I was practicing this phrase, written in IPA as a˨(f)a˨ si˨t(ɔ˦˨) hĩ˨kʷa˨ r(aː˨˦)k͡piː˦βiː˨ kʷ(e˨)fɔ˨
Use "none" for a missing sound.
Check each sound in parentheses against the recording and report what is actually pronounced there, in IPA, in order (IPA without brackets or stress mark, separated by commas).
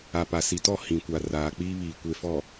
p, ɔ˦˨, aː˨, e˨